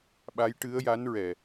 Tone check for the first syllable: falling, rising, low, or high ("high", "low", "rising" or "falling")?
rising